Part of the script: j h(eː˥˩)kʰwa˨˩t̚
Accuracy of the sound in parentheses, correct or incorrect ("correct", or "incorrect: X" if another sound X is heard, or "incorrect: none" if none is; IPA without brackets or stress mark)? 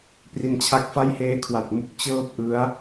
incorrect: eː˦˥